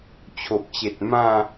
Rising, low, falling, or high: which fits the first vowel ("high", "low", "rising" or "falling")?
low